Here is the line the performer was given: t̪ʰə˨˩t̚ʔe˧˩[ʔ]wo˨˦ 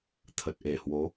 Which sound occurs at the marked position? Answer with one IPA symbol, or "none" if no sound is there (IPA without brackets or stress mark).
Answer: h